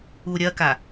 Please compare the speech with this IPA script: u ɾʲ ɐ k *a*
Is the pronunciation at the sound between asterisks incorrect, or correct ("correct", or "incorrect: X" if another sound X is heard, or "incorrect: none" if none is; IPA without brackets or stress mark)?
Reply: correct